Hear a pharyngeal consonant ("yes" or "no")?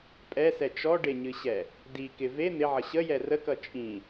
yes